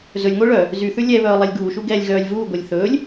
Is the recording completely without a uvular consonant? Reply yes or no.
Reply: yes